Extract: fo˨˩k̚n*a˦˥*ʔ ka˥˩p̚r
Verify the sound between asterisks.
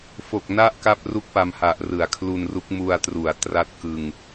correct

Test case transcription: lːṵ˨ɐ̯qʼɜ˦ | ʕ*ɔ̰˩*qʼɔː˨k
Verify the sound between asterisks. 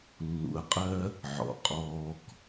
correct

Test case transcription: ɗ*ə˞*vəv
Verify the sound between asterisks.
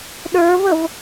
correct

